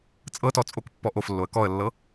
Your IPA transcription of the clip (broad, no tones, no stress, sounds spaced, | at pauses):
t͡sʼ ɤ t ɔ t͡sʼ o k pː ɔ ʔ o f lː o ə̯ k ɔ ə̯ lː ɤ